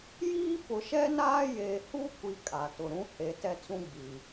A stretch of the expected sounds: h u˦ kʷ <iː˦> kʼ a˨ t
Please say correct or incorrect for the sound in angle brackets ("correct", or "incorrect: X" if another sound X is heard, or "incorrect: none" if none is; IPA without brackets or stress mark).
incorrect: i˦